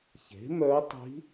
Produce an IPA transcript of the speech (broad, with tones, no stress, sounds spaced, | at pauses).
ç e̤˩˥ m œ˧˥ tˤ i̤˧˥